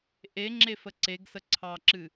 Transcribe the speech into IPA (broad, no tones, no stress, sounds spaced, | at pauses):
ʔ e ŋ͡ǁ e f ə ǀ e ɡ s ə ǀʰ ɑ ǁ ɨ